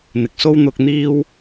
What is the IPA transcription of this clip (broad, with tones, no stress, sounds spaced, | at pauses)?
n̪ ɪ˨ k̚ s o˥ w n̪ ʊ˧ k̚ n̪ iː˥ w